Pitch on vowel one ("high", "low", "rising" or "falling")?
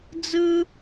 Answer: high